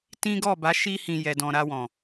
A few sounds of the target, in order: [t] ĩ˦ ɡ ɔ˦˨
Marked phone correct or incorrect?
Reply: correct